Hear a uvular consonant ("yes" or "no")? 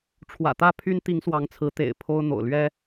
no